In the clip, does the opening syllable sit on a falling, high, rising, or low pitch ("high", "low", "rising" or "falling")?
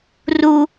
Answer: high